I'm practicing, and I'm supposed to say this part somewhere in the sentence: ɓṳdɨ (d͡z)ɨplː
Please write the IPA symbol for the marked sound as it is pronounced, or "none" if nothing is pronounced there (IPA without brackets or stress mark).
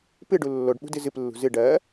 z